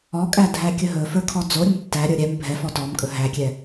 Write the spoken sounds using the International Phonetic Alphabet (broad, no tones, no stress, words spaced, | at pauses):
ɔkʼæ dʱækʲɵɦɵfə˞ kʰɔd͡zoɾʲəm tːæɾʲə˞ ɾʲɛm bʱɛfɔ tɔmkʼɵ ɦækʲɛ